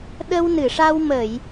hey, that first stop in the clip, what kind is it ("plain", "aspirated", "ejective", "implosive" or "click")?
implosive